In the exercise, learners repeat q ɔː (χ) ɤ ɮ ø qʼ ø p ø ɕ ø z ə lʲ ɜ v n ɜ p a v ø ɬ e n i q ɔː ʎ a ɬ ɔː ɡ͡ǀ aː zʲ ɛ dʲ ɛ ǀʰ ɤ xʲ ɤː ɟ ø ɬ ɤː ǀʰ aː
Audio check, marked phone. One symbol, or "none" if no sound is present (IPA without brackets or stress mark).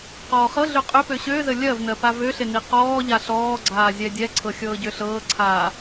χ